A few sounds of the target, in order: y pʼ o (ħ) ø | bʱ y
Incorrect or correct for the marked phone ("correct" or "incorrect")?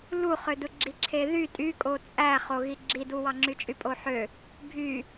correct